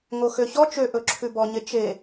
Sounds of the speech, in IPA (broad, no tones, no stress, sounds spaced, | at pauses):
ŋ o x ø ç ɔ t͡ʃ ø ʔ ɵ ǁʰ ʉ b ɔ ɲ e t͡ʃ e